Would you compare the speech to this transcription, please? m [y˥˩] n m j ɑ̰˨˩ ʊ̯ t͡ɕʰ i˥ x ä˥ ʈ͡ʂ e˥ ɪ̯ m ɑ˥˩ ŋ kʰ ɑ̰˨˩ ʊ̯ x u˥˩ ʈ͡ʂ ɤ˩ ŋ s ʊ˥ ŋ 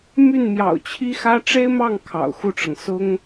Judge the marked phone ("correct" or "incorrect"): correct